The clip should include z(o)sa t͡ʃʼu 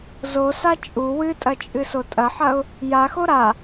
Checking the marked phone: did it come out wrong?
no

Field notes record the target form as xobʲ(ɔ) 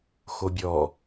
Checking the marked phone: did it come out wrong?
no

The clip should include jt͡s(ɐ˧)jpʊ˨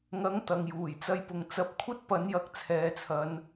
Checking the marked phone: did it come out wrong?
no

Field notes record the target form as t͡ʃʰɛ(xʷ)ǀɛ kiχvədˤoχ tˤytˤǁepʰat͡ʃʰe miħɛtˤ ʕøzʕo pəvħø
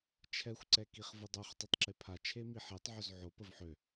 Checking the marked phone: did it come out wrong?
no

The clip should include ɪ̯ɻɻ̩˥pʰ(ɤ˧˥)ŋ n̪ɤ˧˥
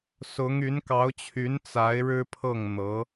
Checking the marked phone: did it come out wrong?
yes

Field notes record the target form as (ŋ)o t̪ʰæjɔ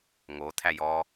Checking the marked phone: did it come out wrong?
no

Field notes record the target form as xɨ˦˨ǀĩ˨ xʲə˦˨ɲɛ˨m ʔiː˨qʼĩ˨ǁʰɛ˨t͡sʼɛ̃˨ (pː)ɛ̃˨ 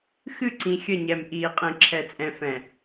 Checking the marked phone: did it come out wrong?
yes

